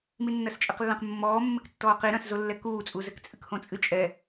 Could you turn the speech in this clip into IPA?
minːɐst͡ʃʼɛqlːɐ̃q mːɔːmːɘk tːɔːqi ɾɐ̃szolːɛ kuːt͡sʼuzɘk t͡sʼɨkhõt͡sʼɨ t͡ʃʼɛ

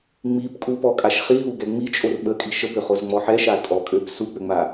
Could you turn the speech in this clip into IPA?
ŋ͡mip kʼupɔkʼaʃ χiɦuɡɛ ŋ͡mit͡ʃʼor ɓəkʼi ʃəbøχozŋ͡mɔ ħɛʃa tʼɔkʼøb suk͡pøŋ͡ma

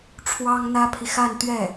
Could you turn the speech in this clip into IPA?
ʈ͡ʂʰwɑ˥ŋn̪ä˥pʰi˨ xa˥˧nt̪ɥɛ˥˩

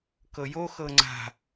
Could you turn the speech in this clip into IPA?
kɤjo xɤŋ͡ǀa̤

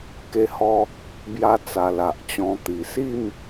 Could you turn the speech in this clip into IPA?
ke˧hɔ˧ | bja˧ t͡sa˨˩ la˨ʔt͡ɕɔ̃˧t̪i˨˩ si˥˧m

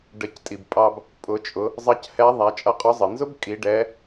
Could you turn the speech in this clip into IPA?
ɖə˩˧ctʼi˩bpʼɑ˧b | pʼʊ˩˧t͡ʃʼʊ˩˧ | zˤʌ˧˥chɛ˧˥ ðˤæ˩˧t͡ʃʼʌ˧˥qʼʊ˧˥zˤə˩ nzʊ˥bkʼi˩˧ ɖɛ˧˥

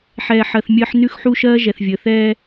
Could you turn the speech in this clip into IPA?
ħɛː˨ħɜ˨θ mʲəː˦ħ nʉ˦xħu˦ʃɜː˦ ʒɛ˨θvʲəː˨ θɛː˦

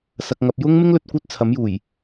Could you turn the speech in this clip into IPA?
sɐ˨k̚ŋɐ˨p̚ jʊ˥ŋ mɪ˥ŋlɵ˧t̚ kʷœː˥t̚t͡sʰɐ˨˥mjuː˨˩j

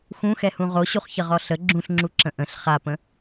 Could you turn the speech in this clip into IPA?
xũxɛhũ ʁoɕuχçəʁɔ ɬə ɡ͡ǁũɬŋ͡ǁuǁə̃ ʔə̃ɬ χapə̃

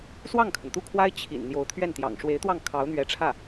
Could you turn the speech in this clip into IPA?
swɑ˥˩ŋkʰə˩nt̪u˥˩kʰwa˥ɪ̯ t͡ɕʰḭ˨˩n n̪jo˧˥ʊ̯t̪ʰɥɛ˥˩nt̪jɑ̰˨˩ŋ ʂwe˧˥ɪ̯t̪wɑ˥˩ŋ kʰɑ˧˥ʊ̯n̪ɥɛ˧˥ʈ͡ʂʰä˥˩

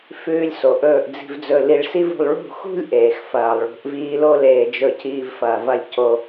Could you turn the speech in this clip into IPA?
fʉː˧lʲ so˨ʔɵː˧ʔ d͡zi̤˧vd͡zɵ˧ li˧ɭ si˦vṳ˧lˠ ɭṳ˦˨xṳ˦lʲ ʔeː˨xfɐː˨lˠɭṳ˨˦ʔviː˦ lo˦leː˧d͡ʒɵ˧ciː˧v fɐː˧vɐ˦lʲ co˧

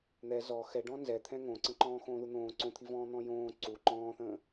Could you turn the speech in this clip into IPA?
n̪ɛ zɔ xɛɖɔ̃ nzɛt̪ʰɛ̃ ŋõǀə̃ ǃɔ̃ːxõːðun̪õː ǀõt̪ʰivɔ̃ː n̪ɔ̃jõː ǀu ǃɔ̃ːθə̃ː

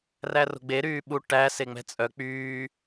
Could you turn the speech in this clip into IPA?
ræro̤ɡ͡be ɾyːɓu ʈæ seŋ͡mɛ̤t͡sʼœ k͡pyː

